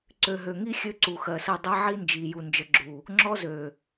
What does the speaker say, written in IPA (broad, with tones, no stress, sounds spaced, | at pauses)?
ǀ ø˨ ɦ ø˨ ŋ i˦ xʲ ø˦ ǀ u˨ x ɜ˨ s ə˦˨ dˤ ɛ˦ ʕ i˦ n d͡ʒ i˨ j u˨ n d͡ʒ ə˨ ɡ͡ǁ u˨ | ŋ͡ǁ ɔ˦ z ø˨